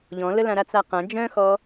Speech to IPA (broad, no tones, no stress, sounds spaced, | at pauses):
ʎ ɔ̃ l ə l ã ɾ a t͡s a q ã d͡ʒ œ̃ x ɔ